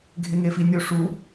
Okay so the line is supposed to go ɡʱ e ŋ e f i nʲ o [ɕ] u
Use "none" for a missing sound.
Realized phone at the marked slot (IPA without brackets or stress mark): ʂ